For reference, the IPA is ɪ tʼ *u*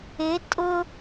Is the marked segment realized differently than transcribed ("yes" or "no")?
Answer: yes